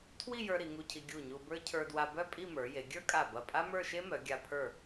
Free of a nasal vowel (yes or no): yes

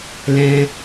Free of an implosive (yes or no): yes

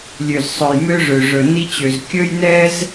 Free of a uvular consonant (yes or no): yes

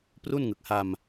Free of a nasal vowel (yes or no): yes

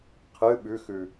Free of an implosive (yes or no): no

